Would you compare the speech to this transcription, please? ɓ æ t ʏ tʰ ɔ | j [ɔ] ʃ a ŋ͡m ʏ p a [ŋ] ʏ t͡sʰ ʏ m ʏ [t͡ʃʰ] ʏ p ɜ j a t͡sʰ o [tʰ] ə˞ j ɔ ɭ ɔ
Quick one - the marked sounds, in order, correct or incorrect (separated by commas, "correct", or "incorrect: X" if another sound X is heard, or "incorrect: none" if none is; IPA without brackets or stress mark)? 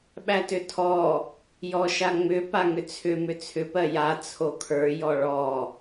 correct, correct, incorrect: t͡sʰ, incorrect: kʰ